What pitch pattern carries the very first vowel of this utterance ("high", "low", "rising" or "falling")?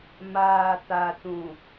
low